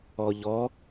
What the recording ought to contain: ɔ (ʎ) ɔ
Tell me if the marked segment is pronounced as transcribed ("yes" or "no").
yes